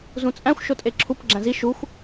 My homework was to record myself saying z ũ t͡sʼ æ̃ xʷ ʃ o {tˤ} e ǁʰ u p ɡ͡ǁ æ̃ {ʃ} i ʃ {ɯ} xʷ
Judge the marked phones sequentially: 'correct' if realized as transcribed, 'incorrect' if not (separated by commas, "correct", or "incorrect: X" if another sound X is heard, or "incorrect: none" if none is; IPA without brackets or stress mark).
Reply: incorrect: tʼ, incorrect: z, incorrect: u